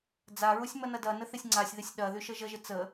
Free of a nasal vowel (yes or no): yes